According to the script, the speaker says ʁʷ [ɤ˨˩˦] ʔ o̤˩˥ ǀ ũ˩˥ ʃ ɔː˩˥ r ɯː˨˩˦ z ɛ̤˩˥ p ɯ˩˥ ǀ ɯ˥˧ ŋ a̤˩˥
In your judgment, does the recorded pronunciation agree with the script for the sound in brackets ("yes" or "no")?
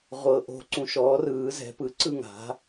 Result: yes